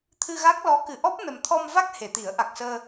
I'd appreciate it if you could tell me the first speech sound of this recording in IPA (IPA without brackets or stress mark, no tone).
t̪ʰ